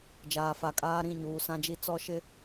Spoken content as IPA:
d͡ʒaː˨fa˨kʼaː˦ ɾĩ˦˨ɲuː˨sã˦d͡ʒi˦ t͡sɔ˦ʃɪ˦

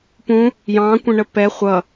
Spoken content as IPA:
pũ | jɑ̃kʷə̃ɳə pɛ χʷʌ

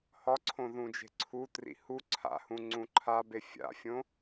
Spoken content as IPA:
hɒǀʰõ ðũd͡ʒe̤ǀʰutrḭ hu ǀʰa̰hũ ŋ͡ǀũǃʰabe fʲa̰fʲõ

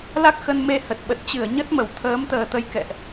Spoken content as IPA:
la˦˥k̚xə˧nme˧hə˨˩t̚ ɓə˨˩t̚t͡ɕɨ˧˩ə̯ ɲə˦˥t̚mə˧˩w t̪ʰəː˨˦mt̪əː˨˩t̪ə˧j kɛ̰˧˨ʔ

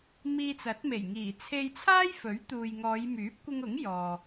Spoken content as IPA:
miː˧t͡sɐ˨˥t̚me˨˩j ŋiː˨˩t͡sʰe˧jt͡sʰaː˥j fɵ˨˥ɥt̪uː˨jŋɔː˨˧j myː˨˥p̚kʷɪ˧ŋʊ˨˥ŋ jɔː˨

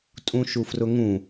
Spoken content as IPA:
tʼũʃufrʊŋũ

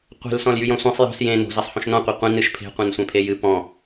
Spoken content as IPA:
qʷe̤l sɔ̃ljyjɔ̃sʷẽsˤ jo̤s jẽ no̤ zesˤhõʃnɔ̃ qʷeqʷĩ nɨʃpʰe̤ qʷẽnsʷɛ̃pʰejɨ pɔ̃

